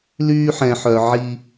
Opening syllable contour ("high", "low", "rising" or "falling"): high